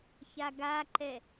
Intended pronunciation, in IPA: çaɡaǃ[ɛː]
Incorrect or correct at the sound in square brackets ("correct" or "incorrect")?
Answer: incorrect